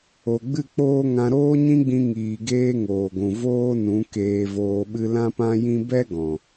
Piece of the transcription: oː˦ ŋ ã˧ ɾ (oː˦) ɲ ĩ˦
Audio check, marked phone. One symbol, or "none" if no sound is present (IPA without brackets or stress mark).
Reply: oː˦